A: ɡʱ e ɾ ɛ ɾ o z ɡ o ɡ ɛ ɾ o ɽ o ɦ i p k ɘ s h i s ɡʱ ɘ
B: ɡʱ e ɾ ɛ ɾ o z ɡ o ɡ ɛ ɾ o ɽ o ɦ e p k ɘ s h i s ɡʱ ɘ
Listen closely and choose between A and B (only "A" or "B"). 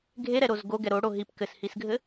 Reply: A